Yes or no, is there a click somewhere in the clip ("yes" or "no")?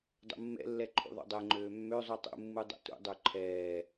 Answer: yes